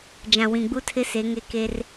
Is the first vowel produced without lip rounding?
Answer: yes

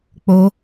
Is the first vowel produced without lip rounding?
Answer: no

